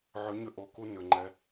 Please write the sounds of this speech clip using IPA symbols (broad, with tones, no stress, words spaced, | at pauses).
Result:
ʕʏ˨˦ɲʏ˧ ʔo˨ku˧nʏ˨ ŋ͡ǃɛ˧